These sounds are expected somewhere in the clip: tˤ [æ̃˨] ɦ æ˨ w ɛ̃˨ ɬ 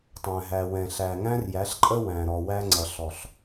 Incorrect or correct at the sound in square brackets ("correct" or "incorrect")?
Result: correct